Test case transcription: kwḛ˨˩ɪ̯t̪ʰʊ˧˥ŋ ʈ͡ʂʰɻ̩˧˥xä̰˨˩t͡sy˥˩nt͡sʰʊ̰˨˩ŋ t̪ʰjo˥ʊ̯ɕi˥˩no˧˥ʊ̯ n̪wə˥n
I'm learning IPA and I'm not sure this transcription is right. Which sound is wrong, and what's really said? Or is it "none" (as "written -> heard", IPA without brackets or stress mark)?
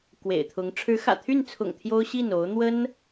t͡s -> t̪ʰ